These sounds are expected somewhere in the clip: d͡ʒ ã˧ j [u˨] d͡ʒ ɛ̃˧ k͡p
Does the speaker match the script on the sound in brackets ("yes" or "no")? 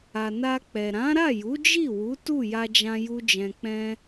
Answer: no